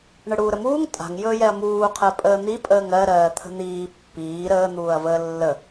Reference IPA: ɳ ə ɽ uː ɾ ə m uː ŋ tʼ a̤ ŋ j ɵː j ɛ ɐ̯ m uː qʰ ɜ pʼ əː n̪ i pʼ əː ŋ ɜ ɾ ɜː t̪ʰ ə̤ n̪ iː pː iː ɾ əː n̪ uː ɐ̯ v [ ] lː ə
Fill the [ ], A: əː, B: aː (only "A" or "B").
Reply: A